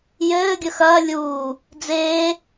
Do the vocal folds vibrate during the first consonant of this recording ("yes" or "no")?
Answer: yes